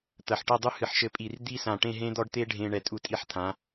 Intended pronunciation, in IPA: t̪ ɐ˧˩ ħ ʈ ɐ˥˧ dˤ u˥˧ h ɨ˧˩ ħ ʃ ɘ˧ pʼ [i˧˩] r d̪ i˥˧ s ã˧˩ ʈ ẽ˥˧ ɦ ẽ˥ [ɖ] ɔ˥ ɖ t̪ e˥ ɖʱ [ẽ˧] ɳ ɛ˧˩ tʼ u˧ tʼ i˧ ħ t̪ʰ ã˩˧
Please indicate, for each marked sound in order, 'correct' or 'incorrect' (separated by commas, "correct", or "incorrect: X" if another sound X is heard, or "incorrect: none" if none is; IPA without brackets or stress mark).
correct, incorrect: d̪, correct